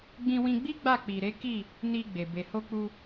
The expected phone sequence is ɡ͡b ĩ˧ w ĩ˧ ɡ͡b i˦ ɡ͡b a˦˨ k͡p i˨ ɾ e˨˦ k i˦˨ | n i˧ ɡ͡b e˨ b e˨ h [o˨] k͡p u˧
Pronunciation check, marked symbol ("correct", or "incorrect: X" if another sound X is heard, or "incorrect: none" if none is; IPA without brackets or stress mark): incorrect: o˧